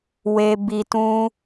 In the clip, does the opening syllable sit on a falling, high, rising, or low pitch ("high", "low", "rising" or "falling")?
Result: low